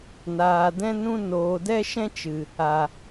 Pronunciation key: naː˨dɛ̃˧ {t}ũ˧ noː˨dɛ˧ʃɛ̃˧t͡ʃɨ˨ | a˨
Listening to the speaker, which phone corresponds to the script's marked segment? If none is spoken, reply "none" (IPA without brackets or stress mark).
n